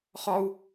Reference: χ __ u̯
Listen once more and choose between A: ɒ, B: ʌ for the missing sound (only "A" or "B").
A